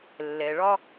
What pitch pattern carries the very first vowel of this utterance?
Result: low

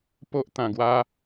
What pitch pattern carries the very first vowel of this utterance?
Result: high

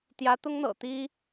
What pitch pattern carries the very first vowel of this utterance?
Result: rising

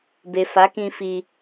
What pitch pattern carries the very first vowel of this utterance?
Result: low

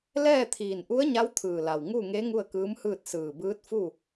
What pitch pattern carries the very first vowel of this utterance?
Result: falling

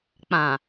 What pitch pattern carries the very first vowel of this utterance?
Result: low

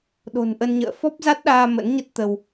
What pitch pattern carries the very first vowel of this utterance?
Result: low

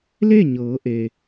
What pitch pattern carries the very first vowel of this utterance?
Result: falling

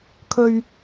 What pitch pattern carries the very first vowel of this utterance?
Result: low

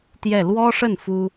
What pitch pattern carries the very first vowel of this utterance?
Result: falling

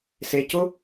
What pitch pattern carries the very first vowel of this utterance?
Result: low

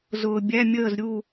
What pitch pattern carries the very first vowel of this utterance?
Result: low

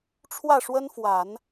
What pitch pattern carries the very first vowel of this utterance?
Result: falling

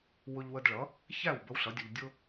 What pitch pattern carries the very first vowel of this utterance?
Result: high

